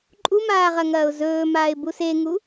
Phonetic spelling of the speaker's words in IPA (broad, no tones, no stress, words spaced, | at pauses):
ǃʼumaːʁɐŋɐːʊ̯ zɵː maːɪ̯buseŋu